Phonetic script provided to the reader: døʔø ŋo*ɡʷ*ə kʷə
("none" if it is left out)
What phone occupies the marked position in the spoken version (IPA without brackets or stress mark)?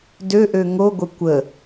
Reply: ɡʷ